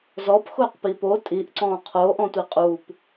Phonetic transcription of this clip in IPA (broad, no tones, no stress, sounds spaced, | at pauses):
z ɔ p x ʊː q p i p o tʼ i ʔ ǀ ɔ̃ː qʰ oː ʔ ɔ̃ tʷ i qʼ u p